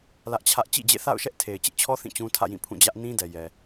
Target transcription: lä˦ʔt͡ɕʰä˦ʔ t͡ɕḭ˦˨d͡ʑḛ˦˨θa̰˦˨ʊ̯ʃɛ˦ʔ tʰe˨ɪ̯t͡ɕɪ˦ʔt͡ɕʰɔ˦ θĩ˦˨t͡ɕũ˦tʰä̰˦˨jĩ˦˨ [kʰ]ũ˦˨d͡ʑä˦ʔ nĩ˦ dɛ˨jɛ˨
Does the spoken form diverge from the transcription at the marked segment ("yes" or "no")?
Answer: yes